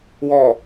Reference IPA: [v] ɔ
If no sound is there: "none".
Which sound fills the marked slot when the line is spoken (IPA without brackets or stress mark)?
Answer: w